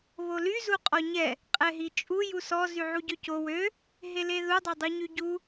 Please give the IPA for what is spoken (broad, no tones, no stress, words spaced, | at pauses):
βoly zuqʼɔɲɛ | qʼɛɦit͡ʃʼu jusɔ zyʕuɟøco wø | ɦeleðu dˤadˤuɲyɟu